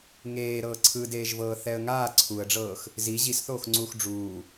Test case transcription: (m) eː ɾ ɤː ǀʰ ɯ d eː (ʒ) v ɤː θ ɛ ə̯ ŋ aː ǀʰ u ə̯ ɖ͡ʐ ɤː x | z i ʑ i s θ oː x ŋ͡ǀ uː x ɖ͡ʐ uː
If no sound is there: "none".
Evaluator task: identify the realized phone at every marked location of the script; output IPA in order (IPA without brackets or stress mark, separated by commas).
ŋ, ʒ